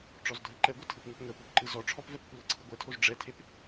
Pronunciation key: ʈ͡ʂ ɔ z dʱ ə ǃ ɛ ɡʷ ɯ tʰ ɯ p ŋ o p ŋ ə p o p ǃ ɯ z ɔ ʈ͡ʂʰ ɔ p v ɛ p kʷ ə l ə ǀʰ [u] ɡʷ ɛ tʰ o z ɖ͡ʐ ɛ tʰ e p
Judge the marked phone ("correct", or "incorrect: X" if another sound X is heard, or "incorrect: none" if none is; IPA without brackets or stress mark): incorrect: ɯ